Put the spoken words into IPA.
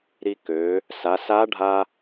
ɾi˧kø˩˧ | sa˩˧sa˧˥ɖʱa˧

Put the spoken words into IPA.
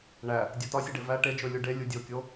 ɳæ | dʲotɒsʲeɖe væ ʈed͡ʒo lʲuɖe lʲudʲokʲo

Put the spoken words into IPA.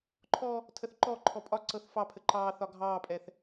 ǃʰɔ | tʰəθǃɔǃʰɔ pʼɒǀɤθ fɑpʰə ǃɑːθɒ ɡʱɑːpʼɛθ

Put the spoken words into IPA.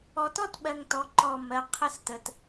ɔ˨tɔ˦tɓɜ˨ŋ tɔ˨˦ ǃɔ˦˨mɜ˦ qʰə˦s tə˨t

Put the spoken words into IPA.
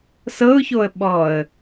sɤʊ̯çoə̯ ɓɔə̯

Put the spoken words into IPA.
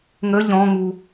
ŋə ʎɔ̃ŋu

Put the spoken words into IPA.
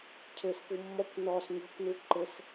cʰɘsfu mːɔkʷ nɔs ɲɔ̤kʷnu ǃɘs

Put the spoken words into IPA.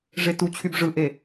ʐetut͡ɕʰyb ʐɯʔe

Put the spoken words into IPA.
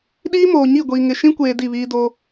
ɗiː˦moː˨ ɲi˦˨ɡʷiː˨ŋɪ˨ ʃĩ˦kʷeː˨ di˦˨βiː˦do˦

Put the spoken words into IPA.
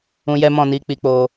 ũ˧jɛ˦mɔ̃˦˨ni˨˦ k͡pi˧k͡po˧

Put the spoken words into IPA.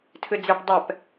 tʰɨd͡zeɖ dˤɛp

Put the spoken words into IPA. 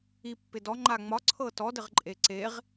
ipːɪ dɔŋ͡ǃa ŋ͡mɒǀʰɤ tɔdɘʁǃʼe ǀeʁ

